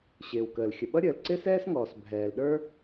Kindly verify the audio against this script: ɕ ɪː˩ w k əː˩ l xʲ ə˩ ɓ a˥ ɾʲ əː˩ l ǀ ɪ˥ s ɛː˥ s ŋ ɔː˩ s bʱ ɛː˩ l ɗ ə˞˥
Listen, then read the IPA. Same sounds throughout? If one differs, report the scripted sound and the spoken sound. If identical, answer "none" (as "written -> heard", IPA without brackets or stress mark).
a˥ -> ʌ˥